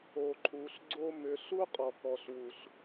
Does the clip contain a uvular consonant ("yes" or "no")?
yes